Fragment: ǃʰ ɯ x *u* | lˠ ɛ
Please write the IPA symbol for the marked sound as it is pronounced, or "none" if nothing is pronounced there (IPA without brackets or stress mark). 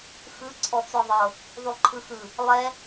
ɯ